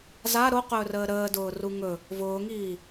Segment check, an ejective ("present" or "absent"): absent